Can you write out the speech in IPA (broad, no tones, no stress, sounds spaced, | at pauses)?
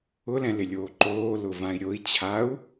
ʊ l ɛ̃ l ɪ lʲ oː ǃ oː l ʊ v ã i̯ ɾʲ o i̯ t͡ɕʰ a u̯